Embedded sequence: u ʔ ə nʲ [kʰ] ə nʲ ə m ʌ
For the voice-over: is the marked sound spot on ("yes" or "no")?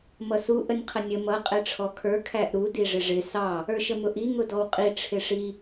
no